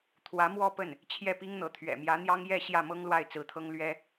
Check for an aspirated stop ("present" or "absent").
present